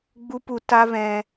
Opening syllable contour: high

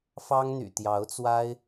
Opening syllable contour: high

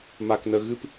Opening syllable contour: low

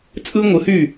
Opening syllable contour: high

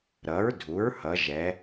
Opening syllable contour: rising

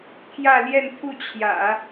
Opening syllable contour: falling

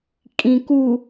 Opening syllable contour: low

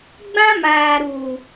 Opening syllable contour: high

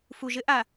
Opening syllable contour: low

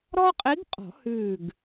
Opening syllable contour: high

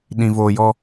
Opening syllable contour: low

